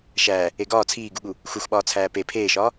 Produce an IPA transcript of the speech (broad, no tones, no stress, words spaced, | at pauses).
ʃæː | eɡɒː t͡sʰiːɡuɠu | xuxɓɒːt͡sʰæː pe pʰeːʃɒː